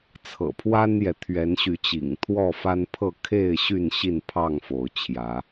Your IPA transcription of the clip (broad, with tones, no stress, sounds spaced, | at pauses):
t͡sʰ ɤ̰˨˩ pʰ w a˦ n j ɛ˨ t̪ʰ ɥ ɛ˨˦ n ɕ y˨˦ t͡ɕ ḭ˨˩ ŋ t̪ʰ w ɔ˥˨ f a˦ n pʰ ɤ˥˨ kʰ e˥˨ ɪ̯ ɕ y˥˨ n ɕ i˥˨ n pʰ ɑ˥˨ ŋ f o˨˦ ʊ̯ t͡ɕʰ j ä˨˦